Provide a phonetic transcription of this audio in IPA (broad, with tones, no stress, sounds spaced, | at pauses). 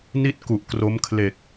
n i˥˩ t̚ k u˨˩ ʔ k r o˦˥ m kʰ l e˨˩ k̚